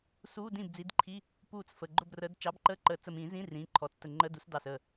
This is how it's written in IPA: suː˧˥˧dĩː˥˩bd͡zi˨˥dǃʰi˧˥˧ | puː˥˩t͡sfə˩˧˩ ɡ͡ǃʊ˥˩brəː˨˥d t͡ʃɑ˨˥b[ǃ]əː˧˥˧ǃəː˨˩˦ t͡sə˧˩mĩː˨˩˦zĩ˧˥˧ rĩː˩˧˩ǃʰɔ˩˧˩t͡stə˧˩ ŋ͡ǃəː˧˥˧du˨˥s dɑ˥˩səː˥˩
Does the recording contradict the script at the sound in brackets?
no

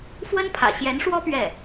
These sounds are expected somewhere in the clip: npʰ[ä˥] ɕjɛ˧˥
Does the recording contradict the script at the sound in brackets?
yes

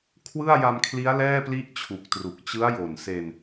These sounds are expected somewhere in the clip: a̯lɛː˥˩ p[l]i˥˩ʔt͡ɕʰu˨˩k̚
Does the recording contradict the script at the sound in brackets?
no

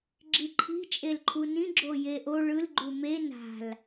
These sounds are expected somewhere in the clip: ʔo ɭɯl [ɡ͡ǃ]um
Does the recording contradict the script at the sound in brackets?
no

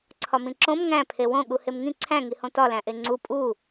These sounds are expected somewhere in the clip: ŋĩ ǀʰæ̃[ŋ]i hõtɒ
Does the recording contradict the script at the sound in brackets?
no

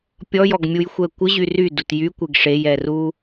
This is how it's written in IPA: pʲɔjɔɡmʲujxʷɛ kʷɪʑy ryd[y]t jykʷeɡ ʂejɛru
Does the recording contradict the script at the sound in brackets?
yes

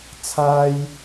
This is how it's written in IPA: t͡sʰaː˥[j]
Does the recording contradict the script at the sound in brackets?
no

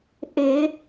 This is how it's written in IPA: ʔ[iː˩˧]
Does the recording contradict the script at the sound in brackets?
yes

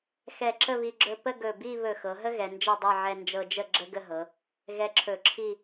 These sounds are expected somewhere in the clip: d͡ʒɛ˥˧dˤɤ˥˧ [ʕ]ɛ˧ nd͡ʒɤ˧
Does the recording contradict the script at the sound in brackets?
no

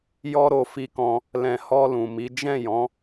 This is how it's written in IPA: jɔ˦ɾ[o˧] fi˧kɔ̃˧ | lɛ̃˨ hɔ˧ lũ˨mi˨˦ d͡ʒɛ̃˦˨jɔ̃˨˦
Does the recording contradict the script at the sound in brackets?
no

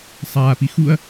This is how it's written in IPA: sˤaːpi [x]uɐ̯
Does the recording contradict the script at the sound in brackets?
no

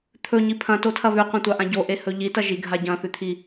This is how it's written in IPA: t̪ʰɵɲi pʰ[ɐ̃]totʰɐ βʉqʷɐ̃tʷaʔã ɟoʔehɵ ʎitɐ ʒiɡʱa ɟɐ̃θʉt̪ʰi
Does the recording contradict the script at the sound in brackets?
no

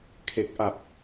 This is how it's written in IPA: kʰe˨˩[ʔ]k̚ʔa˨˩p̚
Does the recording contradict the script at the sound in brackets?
yes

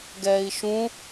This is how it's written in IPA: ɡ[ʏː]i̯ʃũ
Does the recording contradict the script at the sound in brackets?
yes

